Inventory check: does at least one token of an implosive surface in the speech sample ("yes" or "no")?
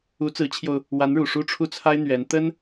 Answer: no